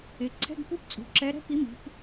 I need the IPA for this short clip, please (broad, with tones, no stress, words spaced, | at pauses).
ɪ˩˧ ǀʰɛ̤˧˥˧ɡpu˧˥˧pt͡sʼṳ˩˧ ǁɛ˨˥ ɾɛ̤˧˥˧pi˨˥mi̤˩˧p